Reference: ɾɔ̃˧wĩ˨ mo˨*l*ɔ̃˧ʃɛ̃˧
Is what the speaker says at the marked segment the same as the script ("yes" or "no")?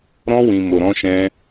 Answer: no